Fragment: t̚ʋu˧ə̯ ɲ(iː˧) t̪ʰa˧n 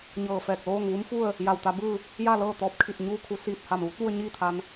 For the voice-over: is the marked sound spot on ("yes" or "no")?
no